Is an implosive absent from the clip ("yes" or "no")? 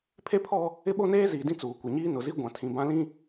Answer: no